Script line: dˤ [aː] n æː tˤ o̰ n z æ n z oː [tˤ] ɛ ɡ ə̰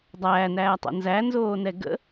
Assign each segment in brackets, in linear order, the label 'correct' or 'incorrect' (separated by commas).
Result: incorrect, incorrect